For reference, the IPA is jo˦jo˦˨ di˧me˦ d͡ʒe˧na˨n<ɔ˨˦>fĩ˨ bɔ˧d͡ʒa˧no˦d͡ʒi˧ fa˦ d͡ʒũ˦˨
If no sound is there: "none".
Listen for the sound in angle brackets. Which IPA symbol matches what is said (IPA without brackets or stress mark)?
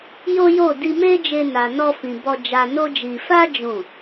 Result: ɔ˧